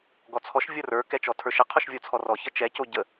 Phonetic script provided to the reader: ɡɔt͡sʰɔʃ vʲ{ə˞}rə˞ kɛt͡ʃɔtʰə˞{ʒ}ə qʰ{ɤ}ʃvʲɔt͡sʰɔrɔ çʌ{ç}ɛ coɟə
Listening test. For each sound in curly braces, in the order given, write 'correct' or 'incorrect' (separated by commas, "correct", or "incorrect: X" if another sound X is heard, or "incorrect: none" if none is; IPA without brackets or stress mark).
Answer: incorrect: ʌ, incorrect: ʃ, incorrect: o, incorrect: t͡ʃ